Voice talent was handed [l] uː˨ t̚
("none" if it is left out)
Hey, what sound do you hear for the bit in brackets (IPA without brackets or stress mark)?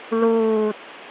l